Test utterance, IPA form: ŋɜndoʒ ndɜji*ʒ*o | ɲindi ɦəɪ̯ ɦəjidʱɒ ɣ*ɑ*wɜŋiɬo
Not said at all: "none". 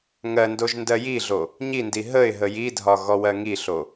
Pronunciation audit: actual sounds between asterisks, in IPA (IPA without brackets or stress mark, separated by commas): ɮ, ɔ